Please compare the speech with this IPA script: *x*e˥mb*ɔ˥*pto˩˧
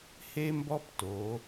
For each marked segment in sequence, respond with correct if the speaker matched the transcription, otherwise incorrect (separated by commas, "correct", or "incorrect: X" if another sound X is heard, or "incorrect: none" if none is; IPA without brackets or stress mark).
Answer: incorrect: h, correct